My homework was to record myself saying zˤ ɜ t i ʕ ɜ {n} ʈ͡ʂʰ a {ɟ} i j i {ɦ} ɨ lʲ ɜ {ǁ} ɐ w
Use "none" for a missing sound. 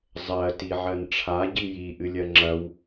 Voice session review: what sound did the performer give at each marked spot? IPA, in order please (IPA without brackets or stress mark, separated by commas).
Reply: n, ɟ, ʔ, ŋ͡ǁ